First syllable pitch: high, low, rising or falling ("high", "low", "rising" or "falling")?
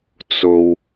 low